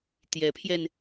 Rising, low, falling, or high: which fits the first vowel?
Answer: rising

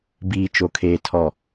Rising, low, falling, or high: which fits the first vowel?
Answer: low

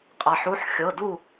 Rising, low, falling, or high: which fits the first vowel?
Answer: low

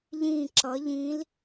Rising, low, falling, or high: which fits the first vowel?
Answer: falling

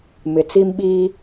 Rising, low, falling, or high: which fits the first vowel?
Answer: low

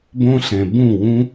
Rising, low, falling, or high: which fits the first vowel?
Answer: high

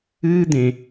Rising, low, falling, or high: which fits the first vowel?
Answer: high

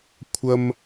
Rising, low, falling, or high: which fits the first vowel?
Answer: high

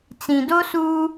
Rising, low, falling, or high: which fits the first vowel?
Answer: low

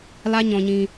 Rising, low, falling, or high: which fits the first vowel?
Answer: high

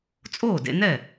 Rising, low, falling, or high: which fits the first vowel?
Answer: falling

